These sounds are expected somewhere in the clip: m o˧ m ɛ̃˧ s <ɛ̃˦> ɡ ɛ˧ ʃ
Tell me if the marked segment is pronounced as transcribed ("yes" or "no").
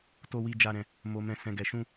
no